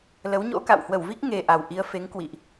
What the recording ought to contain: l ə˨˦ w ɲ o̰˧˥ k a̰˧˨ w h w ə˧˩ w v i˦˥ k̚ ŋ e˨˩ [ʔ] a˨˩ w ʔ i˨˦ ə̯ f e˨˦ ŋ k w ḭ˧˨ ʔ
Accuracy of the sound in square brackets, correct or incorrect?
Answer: correct